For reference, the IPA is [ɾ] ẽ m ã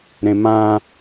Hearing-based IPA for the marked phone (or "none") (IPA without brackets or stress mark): ɾ